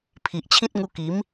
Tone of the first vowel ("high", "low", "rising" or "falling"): low